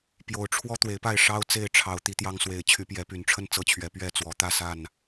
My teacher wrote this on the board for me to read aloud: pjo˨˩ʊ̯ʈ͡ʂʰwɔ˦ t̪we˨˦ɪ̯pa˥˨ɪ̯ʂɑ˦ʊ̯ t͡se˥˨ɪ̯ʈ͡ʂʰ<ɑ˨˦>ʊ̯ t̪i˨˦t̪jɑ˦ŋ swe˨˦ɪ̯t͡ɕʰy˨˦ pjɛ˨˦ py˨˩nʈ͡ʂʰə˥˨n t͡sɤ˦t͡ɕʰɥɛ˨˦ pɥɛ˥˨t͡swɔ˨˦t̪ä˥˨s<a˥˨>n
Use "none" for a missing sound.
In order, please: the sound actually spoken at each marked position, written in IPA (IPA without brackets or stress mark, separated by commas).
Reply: ɑ˨˦, a˥˨